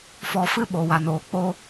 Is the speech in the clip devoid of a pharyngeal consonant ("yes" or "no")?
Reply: yes